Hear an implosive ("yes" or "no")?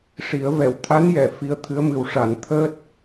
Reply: no